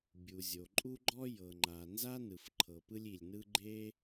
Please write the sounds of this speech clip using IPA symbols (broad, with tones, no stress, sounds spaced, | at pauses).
bʲ u˩ zʲ o˩ ǃʼ u˥ ɡ͡ǃ ɔ˥ j ɤ˩ ŋ͡ǃ a˩ n z a˥ n ɯ˩ f ǃʰ ɤ˩ p ɯ˥ lʲ i˩ lʲ n ɯ˥ ɡ͡ǃ e˥